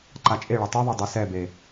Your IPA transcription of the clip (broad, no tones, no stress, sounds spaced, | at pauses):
ǃ a t͡ʃʼ e ɭ ʌ tˤ ɯ ðˤ e dˤ ɛ s ɛ b e